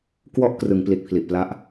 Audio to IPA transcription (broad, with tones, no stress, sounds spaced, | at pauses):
k w ɔ˥˩ ʔ k r ɯ˩˦ ŋ p l i˨˩ t̚ pʰ l i˨˩ ʔ p l a˦˥ ʔ